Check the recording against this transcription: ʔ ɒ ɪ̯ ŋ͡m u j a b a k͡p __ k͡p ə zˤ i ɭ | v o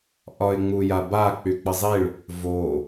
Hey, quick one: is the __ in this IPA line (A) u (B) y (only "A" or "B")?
B